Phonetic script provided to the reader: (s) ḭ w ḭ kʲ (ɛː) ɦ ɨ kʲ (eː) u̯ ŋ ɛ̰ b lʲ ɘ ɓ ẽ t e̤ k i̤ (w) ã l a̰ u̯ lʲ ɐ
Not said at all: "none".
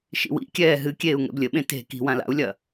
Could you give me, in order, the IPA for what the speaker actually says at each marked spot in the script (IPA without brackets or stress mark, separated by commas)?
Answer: ʃ, ɛː, eː, w